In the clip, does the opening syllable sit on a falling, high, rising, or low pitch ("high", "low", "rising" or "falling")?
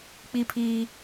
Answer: high